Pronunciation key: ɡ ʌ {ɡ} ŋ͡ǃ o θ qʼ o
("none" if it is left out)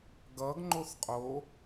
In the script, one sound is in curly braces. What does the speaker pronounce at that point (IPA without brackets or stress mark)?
ɡ